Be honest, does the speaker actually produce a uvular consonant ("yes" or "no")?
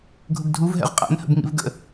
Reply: yes